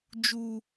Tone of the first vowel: high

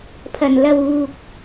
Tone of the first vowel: low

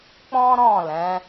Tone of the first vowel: high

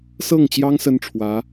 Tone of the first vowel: falling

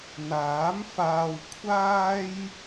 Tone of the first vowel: rising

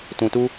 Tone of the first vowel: low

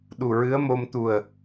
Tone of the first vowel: low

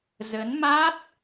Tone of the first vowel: rising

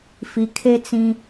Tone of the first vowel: low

